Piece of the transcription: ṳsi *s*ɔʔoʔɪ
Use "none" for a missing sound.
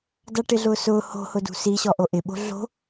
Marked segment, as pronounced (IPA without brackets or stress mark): ɕ